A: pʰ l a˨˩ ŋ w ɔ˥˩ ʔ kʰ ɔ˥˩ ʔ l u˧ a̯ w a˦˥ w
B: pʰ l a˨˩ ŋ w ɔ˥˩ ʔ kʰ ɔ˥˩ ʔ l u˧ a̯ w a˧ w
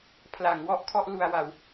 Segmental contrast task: B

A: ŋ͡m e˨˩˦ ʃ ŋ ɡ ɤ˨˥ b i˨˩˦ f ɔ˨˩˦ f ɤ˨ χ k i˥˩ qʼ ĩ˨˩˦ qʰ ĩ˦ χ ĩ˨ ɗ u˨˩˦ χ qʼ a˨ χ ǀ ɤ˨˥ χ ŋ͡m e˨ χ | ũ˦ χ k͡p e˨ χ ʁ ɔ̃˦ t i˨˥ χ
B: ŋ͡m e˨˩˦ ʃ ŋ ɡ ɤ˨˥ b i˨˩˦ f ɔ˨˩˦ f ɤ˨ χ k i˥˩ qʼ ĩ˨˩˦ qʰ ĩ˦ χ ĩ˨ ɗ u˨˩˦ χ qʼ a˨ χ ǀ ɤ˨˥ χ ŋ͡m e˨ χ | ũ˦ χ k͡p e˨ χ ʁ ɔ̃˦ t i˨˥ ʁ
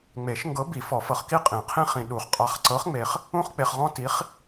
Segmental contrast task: A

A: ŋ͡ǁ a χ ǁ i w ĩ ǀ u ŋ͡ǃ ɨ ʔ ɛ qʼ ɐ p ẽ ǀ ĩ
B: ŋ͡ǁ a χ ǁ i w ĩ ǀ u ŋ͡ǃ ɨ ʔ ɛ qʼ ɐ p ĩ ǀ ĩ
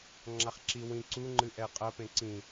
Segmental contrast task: A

